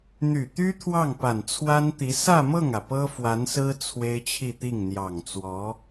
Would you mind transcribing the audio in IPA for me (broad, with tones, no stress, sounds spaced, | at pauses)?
n̪ y˨˩ t̪ y˥ t̪ʰ w ɑ˥˩ ŋ p a˨˩ n t͡sʰ w a˥ n t̪ i˧˥ s ä˥˧ m ɤ˥˩ ŋ ä˩ p ɤ˥ f w a˧˥ n s ɹ̩˥ t͡sʰ w e˥ ɪ̯ t͡ɕʰ i˥˧ t̪ i˥˩ ŋ n̪ j ɑ˨˩ ŋ t͡s w ɔ˧˥